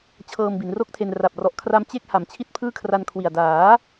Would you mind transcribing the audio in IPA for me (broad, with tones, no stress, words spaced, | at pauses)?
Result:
t͡ɕʰɤː˧mbi˩˦nro˥˩k̚tʰe˧n ra˨˩p̚ rɔ˨˩ʔkʰra˧m t͡ɕe˥˩k̚ha˩˦m t͡ɕʰi˥˩t̚pʰɯː˥˩kʰra˧n kʰwi˨˩a̯ daː˩˦